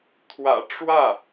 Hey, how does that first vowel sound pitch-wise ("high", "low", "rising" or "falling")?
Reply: low